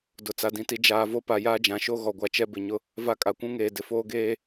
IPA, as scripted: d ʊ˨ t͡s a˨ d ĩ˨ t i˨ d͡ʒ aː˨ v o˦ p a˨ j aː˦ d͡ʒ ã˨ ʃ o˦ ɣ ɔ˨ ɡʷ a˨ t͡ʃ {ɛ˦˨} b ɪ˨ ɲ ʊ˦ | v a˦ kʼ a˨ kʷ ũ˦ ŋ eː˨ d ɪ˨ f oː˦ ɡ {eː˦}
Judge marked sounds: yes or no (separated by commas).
no, yes